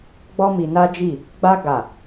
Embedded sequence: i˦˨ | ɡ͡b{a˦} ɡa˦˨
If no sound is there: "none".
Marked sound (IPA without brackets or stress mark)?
a˦